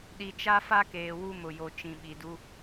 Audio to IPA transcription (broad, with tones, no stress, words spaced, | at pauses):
ɗi˨t͡ʃa˦fa˦keː˨ wu˦mʊ˨jo˨ t͡ʃĩ˨ɓi˨du˦